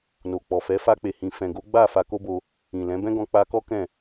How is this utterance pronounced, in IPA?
n o˨ k͡p ɔ˨ f ɛ˨˦ f a˧ k͡p e˨ h ĩ˨ f ɛ̃˨ ɡ o˨˦ ɡ͡b a˦˨ f a˧ k o˦ b o˧ | ĩ˨ l ɛ̃˨˦ b ɛ̃˦ ɡ ɔ̃˧ k͡p a˧ k ɔ˦ k ɛ̃˦˨

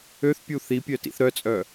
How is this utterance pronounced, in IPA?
ø θ pʲ u θ i pʲ œ t ḭ θ ɾ œ t͡sʼ œ

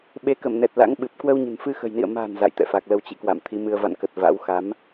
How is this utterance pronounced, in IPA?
ɓ e˨˦ k ə˧˩ m n ɛ˨˩ t̚ l a̰˧˥ ŋ ɓ ɨ˨˩ p̚ k w ə˧ w ɲ ə̤˨˩ n f ɨ˧ x ə̤˨˩ j n ḭ˧˨ ə̯ m a̤˨˩ n z a̰˧˨ j t̪ ɛ̰˧˨ f a˨˩ k̚ l ə˧ w t͡ɕ ḭ˧˨ k w a̰˧˨ m t̪ʰ i˨˦ m ɨ˧ ə̯ v a̰˧˨ n k ə˨˩ t̚ v a̰˧˥ w x a˨˦ m

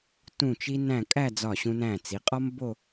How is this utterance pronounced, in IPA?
t ũ˥˧ t͡ʃ i˥ n æ̃˥˧ kʼ æ˥˧ d͡z ɒ˧˩ ɕ ũ˧ n æ̃˧˩ t͡s i˩˧ qʼ ɒ˥ m b o˥˧

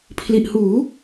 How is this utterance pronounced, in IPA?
pʰ l i˨˩ ʔ h uː˩˦

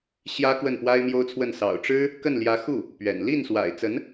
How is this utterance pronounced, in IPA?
ɕ j ä˥ k w ə˥˩ n p w a˥ ɪ̯ m j o˥ ʊ̯ t͡sʰ w ə˥˩ n s ɑ̰˨˩ ʊ̯ ʈ͡ʂ ɻ̩˥ | k ə˥˩ n l j ä˧˥ x u˥˩ | p ɥ ɛ̰˨˩ n l i˥˩ n s w a̰˨˩ ɪ̯ t͡s ə˧˥ n

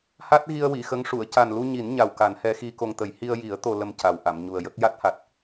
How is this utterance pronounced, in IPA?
h a˦˥ t̚ ɣ i˧ ə̯ w i˨˩˨ x ə˧˥ ŋ ʂ u˨˩˨ ə̯ c a˨˩ n l u˧ ɲ i˨˩˦ n ɲ a˨˩ w k a˨˩˦ n h ɛ˧˥ x i˧ k o˧ ŋ t̪ ə˨˩˦ j h i˧ ə̯ j i˨˩˦ ə̯ t̪ o˧ l ə˧ m c a˨˩ w ʔ a˨˩˨ m ɲ u˨˩ ə̯ j ə˦˥ k̚ j a˦˥ t̚ h a˨˩ t̚

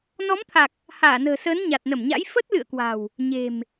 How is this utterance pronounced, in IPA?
n ɔ˨˦ m t̪ʰ a˨˩ k̚ | h aː˧˩ n ə̤ː˨˩ s əː˨˦ n ɲ a˨˩ t̚ n ə˧˩ m ɲ a̰˧˥ j f ə˦˥ t̚ l ɨ̰˧˨ ə̯ k w a̤˨˩ w | ɲ e̤˨˩ m

